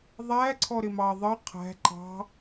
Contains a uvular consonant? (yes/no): yes